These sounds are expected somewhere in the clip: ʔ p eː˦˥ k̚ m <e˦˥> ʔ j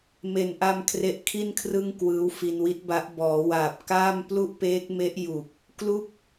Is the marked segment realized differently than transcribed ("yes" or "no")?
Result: no